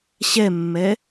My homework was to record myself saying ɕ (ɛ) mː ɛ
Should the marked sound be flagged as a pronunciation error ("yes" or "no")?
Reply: no